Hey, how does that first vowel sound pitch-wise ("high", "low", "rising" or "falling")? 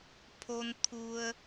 low